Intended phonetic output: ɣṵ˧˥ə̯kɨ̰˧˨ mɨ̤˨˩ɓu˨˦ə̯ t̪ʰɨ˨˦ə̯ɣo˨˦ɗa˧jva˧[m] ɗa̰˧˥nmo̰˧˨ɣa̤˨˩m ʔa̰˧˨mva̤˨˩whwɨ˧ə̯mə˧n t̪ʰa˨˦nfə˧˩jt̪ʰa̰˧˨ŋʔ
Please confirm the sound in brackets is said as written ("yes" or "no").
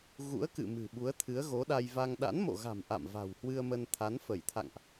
no